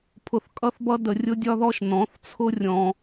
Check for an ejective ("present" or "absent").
present